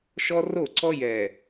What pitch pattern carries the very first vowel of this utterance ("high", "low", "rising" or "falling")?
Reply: high